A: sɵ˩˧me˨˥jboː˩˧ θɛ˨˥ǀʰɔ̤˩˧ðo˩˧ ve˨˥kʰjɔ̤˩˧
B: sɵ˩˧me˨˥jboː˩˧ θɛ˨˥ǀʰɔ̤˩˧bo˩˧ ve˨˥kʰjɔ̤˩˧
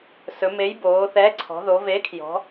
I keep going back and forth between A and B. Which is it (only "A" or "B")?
A